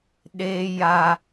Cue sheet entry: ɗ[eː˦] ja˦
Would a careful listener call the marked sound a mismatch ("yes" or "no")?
no